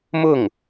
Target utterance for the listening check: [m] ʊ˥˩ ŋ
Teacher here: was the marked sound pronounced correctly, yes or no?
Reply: yes